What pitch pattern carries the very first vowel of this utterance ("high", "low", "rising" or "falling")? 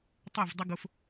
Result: falling